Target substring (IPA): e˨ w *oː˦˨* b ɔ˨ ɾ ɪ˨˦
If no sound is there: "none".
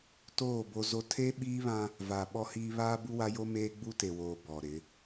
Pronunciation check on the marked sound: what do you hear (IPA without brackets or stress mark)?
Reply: oː˨